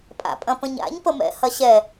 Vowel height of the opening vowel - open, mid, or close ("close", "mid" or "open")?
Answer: open